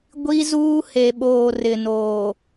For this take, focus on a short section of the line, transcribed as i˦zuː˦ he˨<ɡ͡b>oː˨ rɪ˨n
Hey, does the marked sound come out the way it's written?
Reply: no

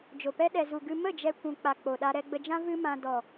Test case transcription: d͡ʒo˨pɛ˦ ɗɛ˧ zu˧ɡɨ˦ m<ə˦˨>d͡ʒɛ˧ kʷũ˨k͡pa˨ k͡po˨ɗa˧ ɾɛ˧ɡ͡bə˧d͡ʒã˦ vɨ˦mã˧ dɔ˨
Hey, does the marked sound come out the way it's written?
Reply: yes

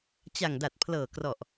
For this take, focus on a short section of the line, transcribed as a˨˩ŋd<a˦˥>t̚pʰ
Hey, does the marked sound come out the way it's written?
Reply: no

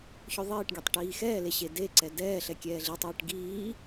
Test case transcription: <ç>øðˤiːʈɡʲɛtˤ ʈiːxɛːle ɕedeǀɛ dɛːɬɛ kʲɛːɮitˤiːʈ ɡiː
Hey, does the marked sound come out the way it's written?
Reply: yes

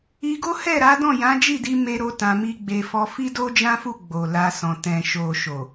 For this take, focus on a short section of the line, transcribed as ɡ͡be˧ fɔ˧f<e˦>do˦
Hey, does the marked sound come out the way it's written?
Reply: no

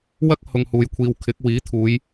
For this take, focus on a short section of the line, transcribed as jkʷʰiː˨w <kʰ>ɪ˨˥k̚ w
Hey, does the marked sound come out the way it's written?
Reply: yes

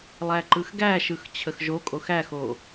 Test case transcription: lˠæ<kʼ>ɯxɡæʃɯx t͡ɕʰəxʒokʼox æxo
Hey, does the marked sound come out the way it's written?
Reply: no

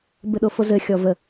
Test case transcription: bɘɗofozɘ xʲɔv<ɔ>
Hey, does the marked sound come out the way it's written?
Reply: no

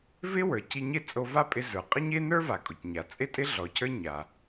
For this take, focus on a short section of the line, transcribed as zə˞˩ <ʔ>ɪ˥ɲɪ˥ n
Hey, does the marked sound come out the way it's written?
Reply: no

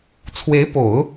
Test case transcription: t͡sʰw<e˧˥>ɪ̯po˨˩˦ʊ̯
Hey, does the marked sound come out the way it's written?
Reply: yes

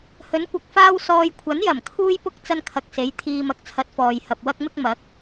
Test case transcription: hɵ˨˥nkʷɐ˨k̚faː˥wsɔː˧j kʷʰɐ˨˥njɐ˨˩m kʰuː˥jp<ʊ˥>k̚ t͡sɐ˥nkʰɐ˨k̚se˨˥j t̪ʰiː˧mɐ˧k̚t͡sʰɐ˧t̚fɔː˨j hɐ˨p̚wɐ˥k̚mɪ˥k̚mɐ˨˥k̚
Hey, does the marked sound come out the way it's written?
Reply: yes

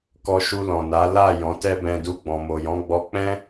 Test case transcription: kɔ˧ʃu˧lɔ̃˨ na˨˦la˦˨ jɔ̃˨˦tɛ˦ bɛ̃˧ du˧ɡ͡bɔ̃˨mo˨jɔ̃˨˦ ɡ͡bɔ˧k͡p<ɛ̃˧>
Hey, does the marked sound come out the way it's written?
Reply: no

